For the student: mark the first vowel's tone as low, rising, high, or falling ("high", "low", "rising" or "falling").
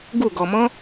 falling